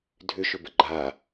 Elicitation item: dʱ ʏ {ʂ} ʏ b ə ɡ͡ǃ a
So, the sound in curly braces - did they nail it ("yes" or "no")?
no